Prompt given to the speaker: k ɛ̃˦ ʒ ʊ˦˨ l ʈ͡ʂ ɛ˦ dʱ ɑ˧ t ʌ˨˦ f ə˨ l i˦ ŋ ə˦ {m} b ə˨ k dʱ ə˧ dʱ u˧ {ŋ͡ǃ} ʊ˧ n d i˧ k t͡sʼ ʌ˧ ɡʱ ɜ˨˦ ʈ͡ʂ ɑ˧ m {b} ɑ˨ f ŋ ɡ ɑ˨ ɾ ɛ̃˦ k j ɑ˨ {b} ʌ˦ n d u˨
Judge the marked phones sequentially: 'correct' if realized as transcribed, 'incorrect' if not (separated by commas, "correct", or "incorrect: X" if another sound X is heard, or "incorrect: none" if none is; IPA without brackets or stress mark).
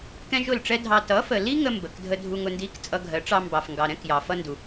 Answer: correct, incorrect: ŋ, correct, incorrect: f